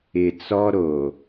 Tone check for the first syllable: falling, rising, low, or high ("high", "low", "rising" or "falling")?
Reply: low